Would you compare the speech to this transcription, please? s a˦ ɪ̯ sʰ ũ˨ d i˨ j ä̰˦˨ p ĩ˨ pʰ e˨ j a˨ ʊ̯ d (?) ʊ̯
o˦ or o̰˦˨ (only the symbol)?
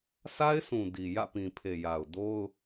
o˦